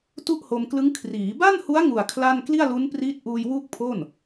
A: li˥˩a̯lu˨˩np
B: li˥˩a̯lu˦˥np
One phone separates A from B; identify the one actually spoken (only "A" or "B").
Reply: B